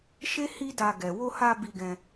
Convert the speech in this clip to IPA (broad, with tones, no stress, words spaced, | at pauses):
ʃe˦ hi˦da˧ ɡɛ˨wo˧ha˧ bi˧ɡɛ̃˧